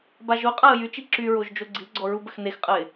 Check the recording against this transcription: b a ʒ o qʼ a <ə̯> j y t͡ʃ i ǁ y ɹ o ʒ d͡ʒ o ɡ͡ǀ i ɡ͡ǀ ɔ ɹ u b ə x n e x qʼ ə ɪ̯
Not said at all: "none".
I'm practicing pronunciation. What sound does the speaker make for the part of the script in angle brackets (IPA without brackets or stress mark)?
ə̯